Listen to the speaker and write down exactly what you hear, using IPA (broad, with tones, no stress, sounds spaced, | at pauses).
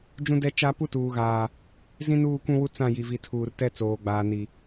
d͡ʒ ũ˦ d ɛ˦ t͡ʃ a˦ p u˦ t uː˨ ɣ aː˨ | z ĩ˦ n uː˦˨ kʷ ũ˦ w u˦ t͡s ã˦˨ j i˨ v i˨ tʰ uː˨ r t ɛ˦ t͡s oː˨ ɡ͡b aː˨ n i˨